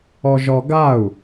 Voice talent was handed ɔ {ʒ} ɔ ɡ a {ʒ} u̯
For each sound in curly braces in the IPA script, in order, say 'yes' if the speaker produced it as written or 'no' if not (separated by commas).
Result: yes, no